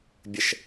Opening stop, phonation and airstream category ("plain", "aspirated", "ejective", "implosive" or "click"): plain